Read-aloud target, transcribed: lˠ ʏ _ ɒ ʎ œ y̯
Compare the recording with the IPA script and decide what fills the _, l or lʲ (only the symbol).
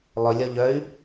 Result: lʲ